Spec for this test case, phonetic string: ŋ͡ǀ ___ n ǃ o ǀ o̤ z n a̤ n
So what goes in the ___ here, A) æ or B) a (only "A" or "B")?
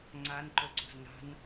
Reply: B